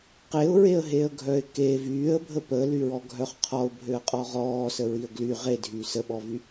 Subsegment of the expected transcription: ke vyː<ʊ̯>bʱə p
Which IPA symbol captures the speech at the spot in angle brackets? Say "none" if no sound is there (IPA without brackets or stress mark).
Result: ə̯